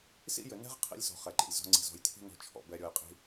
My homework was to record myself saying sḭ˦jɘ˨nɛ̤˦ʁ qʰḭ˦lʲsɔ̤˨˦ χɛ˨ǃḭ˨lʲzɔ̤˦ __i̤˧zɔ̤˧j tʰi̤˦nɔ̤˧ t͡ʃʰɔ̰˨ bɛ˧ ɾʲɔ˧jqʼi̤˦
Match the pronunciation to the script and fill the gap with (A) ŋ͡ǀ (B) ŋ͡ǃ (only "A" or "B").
A